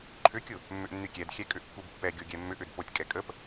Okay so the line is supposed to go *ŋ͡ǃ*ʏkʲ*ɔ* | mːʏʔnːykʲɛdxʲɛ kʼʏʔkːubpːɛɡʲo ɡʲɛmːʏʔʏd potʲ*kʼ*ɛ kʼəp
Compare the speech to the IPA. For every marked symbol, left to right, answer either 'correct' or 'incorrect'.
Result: incorrect, incorrect, correct

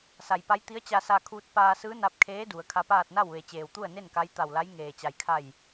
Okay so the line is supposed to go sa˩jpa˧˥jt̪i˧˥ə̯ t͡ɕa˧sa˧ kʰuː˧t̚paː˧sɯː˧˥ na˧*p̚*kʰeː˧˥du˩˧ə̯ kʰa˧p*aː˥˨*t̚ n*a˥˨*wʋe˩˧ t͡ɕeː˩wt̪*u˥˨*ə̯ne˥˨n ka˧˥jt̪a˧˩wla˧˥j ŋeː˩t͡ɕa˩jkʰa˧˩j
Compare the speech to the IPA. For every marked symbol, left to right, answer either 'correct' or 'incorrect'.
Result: correct, correct, correct, correct

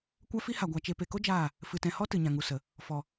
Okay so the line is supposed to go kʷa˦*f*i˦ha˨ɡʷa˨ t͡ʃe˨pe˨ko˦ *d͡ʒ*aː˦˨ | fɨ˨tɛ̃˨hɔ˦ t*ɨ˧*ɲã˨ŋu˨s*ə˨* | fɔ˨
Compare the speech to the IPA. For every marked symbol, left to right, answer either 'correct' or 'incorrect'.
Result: correct, correct, incorrect, correct

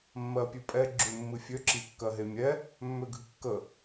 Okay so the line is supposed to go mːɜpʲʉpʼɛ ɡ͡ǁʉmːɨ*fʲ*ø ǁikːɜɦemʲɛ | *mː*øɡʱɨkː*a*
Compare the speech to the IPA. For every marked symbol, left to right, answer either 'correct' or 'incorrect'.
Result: correct, correct, incorrect

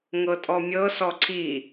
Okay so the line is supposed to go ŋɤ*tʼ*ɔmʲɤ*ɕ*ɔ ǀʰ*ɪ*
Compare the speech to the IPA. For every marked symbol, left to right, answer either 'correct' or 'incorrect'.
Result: correct, incorrect, incorrect

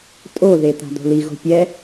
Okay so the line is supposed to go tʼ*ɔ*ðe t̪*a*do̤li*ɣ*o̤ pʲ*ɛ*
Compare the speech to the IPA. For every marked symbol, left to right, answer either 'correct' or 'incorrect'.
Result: incorrect, incorrect, correct, correct

